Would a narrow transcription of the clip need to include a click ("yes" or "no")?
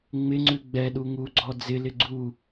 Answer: yes